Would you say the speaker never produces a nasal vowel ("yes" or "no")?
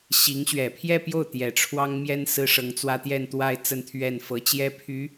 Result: yes